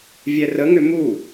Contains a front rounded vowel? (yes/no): yes